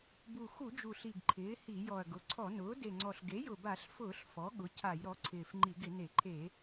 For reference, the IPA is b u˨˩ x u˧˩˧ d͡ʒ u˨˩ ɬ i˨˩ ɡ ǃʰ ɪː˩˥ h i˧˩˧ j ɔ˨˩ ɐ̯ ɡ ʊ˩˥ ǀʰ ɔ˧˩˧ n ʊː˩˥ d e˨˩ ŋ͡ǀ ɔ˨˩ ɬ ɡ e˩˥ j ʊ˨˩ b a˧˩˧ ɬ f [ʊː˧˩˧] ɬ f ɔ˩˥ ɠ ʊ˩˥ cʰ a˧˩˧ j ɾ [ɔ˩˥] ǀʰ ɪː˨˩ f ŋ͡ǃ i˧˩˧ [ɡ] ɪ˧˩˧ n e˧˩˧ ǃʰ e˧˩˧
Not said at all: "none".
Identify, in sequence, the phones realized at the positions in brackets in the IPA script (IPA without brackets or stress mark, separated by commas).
ʊː˧˩˧, ɔ˩˥, ɡ